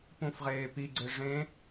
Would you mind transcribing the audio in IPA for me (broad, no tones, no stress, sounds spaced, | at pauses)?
p ũ f ʁ eː p i ɡ͡ǀ e ʐ ẽ